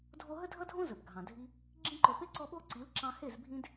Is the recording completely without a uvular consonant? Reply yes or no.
yes